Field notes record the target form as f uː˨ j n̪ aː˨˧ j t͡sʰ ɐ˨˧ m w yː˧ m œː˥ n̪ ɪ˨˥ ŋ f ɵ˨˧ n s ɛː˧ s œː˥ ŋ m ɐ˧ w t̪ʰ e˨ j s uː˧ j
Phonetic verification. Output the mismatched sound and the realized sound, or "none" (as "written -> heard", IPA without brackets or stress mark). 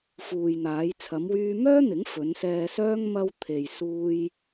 none